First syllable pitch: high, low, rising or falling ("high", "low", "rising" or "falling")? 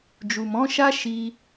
low